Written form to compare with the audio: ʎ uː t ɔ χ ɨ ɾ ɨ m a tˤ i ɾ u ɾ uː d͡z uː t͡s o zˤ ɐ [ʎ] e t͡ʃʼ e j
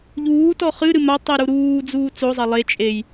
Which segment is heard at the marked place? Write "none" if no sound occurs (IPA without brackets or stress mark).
lˠ